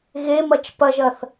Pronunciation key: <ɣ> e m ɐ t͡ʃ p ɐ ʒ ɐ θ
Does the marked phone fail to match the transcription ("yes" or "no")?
no